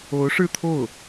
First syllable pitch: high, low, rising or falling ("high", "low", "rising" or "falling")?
rising